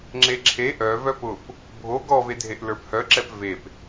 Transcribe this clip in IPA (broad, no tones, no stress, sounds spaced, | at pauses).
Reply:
ŋ͡ǁ e ǁʰ e ʔ œ v œ p ʊ p | bʱ o ɡ ɔ v e dʱ e ʔ l ə˞ p h œ ǁ ɛ p v e p